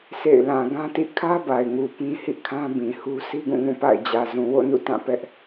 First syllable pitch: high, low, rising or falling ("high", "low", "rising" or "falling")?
falling